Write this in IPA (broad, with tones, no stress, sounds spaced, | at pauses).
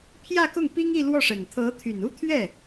pʰ j ä˥˧ k ʊ˥˩ ŋ p i˥ ŋ i˥˧ l w ɔ˥˩ ʂ ə˨˩ n t̪ʰ ɤ˧˥ t̪ʰ y˨˩ n u˥ t̪ʰ ɥ ɛ˥˩